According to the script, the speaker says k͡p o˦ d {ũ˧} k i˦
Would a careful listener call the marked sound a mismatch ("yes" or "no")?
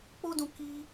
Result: no